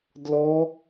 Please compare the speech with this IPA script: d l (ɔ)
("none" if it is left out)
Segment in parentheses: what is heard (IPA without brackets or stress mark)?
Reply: ɔ